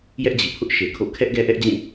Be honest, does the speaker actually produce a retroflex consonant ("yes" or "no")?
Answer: no